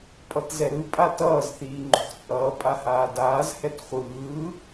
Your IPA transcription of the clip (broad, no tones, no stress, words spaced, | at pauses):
pʼʌtzɛɾɯ pʼatʌːz θiːŋ͡ǃo̤χt͡sʼʌː pʼahaːdaːz hɛtχʷɯː